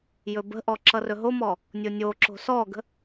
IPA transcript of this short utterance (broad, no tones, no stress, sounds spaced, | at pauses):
j ɵ b ə̤ ʔ ɔ ǁ ʌ r ɵ ɦ o m ɔ | nʲ o nʲ o ǁ o̤ s ɔ ɡ ə̤